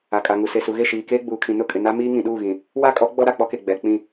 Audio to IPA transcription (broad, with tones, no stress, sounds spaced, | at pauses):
a˨ kʼ a˨ ŋ u˨ s e˨ s u˨ ɣ e˦˨ ʃ iː˨ k eː˦ ɡ͡b uː˨ kʰ ĩ˨ n ʊ˦˨ kʼ ɪ˨ n a˦ m iː˦ ŋ ĩ˨ ɗ uː˦˨ ɣ ĩ˨ | w a˦ kʼ ɔ˨˦ ɡ͡b ɔ˦ ɾ a˨ k͡p ɔ˦ k e˨ ɡ͡b ɛ˨ k͡p ĩ˦˨